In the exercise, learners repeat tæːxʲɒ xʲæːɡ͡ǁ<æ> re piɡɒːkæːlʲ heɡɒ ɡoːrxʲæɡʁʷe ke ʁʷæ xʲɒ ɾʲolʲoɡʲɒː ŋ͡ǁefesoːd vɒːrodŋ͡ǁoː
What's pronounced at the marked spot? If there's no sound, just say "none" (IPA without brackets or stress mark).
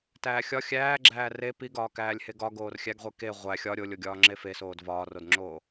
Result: æː